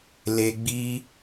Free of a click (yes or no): yes